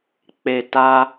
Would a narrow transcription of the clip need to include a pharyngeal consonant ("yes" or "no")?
no